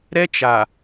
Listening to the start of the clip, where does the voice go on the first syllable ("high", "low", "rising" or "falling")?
high